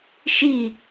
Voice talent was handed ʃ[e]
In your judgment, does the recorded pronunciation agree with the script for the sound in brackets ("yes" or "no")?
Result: no